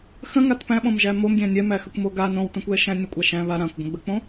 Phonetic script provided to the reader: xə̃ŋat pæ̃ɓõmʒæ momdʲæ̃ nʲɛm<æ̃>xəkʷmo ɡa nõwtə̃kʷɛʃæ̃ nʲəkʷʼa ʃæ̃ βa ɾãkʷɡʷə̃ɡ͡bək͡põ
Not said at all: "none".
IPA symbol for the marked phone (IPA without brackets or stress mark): æ